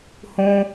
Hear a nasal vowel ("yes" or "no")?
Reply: yes